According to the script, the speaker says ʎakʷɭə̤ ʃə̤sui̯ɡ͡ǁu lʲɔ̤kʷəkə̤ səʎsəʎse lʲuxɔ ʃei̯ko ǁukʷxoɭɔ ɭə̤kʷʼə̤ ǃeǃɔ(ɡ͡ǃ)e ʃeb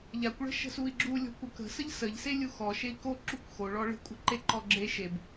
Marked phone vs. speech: incorrect: ɡ͡ǁ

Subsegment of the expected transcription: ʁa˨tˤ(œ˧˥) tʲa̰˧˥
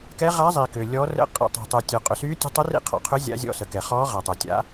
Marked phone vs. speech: incorrect: œ˨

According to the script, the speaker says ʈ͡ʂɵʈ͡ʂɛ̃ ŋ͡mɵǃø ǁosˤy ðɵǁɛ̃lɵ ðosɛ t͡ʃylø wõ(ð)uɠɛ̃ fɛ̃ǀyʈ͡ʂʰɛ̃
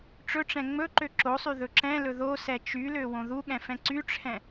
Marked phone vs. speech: correct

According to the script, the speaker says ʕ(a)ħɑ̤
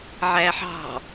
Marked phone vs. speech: incorrect: æ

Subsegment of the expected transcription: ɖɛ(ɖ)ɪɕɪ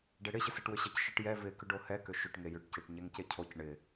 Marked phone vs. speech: incorrect: ɽ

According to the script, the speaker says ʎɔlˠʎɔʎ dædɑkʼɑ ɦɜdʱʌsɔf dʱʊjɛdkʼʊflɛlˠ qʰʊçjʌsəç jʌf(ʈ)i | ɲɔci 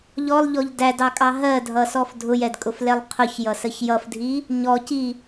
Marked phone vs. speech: incorrect: dʱ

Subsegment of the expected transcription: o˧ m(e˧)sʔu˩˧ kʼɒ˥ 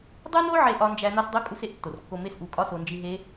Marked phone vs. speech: incorrect: e˥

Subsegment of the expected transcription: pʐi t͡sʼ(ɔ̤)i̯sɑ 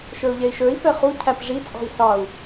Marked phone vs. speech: correct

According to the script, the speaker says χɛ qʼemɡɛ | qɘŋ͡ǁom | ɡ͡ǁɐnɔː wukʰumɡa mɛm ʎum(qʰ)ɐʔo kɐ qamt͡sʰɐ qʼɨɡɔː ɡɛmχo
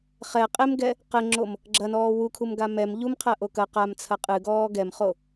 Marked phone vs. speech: correct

